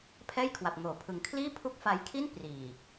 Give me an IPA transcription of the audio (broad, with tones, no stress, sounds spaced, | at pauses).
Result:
pʰ ɛː˥˩ j kʰ w a˨˩ p̚ ŋ oː˩˦ pʰ ɯ˨˩ ŋ kʰ l iː˥˩ pʰ u˦˥ k̚ f a˧ j kʰ i˥˩ n p r iː˨˩